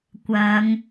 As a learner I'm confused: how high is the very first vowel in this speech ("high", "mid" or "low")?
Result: low